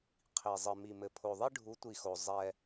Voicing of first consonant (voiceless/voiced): voiceless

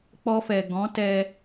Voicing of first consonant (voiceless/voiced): voiceless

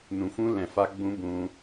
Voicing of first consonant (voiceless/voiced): voiced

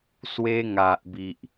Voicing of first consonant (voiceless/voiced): voiceless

